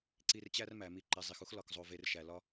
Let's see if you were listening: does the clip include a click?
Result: yes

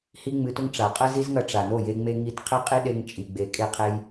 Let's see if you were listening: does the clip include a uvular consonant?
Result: yes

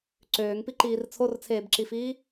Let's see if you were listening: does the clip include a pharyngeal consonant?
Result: no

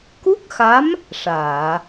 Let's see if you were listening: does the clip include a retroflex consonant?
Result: yes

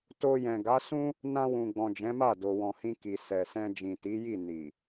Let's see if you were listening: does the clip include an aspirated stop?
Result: no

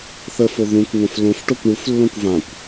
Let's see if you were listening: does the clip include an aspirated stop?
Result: no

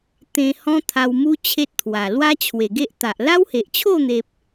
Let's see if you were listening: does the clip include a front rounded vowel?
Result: no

